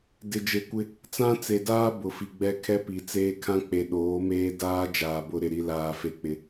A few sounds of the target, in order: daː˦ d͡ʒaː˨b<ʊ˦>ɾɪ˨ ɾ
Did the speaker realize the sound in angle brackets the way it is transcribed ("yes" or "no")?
yes